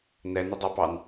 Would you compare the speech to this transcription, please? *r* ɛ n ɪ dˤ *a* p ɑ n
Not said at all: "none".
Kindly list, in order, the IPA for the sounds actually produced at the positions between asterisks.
n, ɑ

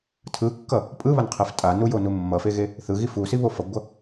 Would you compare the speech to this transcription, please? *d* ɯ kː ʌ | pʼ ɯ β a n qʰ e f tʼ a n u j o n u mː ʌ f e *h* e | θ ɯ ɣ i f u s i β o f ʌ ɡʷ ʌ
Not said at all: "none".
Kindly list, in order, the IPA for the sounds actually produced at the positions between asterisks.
tʰ, ɣ

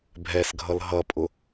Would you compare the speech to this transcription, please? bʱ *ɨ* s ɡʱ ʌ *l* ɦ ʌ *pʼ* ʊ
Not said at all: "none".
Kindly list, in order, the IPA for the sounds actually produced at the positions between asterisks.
ɛ, l, pʼ

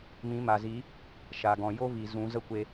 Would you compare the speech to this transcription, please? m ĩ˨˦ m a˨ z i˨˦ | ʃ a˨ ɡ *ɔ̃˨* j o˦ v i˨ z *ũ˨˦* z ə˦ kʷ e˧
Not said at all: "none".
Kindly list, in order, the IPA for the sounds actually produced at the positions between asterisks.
ɔ̃˨, ũ˨˦

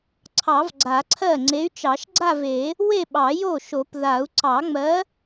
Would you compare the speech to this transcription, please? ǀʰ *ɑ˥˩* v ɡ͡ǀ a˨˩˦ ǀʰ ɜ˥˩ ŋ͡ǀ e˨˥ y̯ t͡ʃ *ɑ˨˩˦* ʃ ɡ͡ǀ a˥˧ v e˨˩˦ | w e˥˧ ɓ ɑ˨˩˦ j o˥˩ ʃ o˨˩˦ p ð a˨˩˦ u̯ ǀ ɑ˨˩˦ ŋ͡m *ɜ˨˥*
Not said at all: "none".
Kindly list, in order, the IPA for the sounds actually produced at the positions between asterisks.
ɑ˨˩˦, ɑ˨˩˦, ɜ˨˥

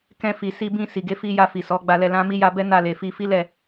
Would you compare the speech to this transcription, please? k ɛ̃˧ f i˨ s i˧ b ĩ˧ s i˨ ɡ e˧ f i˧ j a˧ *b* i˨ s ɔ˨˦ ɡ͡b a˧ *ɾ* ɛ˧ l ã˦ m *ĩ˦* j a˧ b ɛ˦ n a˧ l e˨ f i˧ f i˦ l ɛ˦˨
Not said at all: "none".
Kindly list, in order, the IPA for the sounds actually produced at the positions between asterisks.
f, l, i˦

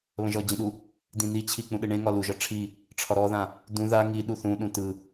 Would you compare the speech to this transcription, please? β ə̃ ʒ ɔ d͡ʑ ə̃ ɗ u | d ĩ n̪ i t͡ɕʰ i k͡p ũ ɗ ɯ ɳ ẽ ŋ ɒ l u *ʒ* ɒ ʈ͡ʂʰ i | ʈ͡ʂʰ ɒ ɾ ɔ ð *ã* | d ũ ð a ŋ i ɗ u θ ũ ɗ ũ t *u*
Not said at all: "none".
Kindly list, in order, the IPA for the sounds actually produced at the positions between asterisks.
ʒ, ã, ɯ

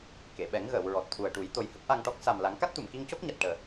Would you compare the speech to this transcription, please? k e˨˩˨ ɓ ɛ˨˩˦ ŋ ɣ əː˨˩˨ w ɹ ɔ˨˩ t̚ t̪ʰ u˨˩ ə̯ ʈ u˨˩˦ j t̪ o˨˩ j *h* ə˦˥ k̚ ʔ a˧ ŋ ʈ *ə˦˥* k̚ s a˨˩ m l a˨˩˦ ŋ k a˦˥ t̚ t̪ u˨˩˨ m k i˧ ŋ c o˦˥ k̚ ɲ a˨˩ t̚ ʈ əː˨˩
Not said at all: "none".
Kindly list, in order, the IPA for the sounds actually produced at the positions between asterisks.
h, ɔ˦˥

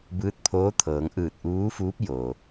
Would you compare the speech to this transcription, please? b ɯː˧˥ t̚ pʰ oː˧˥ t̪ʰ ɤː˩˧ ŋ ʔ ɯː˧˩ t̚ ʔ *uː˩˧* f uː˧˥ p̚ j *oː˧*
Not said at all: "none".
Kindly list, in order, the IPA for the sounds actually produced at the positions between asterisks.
uː˧˥, oː˩

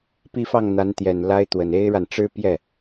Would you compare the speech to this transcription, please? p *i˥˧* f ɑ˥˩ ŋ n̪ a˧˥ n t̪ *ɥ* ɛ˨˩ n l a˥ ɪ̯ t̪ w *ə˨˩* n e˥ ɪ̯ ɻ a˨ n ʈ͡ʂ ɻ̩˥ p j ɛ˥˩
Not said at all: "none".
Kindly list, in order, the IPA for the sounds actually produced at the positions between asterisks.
i˥˧, j, ə˨˩

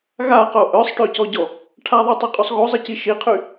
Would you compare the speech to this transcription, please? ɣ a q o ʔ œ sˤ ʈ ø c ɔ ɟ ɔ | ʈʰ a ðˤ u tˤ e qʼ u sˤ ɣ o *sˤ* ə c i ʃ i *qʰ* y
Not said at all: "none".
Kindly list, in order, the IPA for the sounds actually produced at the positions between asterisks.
zˤ, qʰ

